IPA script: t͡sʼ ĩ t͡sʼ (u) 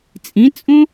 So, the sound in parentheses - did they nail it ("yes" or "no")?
no